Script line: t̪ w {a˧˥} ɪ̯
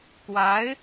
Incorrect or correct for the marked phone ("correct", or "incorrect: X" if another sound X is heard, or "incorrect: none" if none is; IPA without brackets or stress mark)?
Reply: correct